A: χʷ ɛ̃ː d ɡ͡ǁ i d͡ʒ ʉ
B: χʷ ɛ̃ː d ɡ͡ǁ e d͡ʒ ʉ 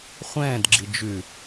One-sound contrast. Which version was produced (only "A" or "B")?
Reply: A